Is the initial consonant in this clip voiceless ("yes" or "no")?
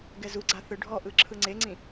no